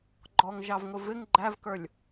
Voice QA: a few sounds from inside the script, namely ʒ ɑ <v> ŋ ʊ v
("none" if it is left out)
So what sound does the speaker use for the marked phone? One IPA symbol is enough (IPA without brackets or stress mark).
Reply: v